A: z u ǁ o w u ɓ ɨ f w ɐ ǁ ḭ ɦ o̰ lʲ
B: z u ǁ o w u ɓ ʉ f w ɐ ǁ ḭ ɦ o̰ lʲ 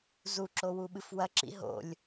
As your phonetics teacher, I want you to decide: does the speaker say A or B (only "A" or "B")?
A